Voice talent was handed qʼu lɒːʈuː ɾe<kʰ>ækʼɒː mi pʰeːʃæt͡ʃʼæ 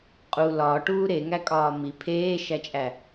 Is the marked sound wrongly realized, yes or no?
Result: yes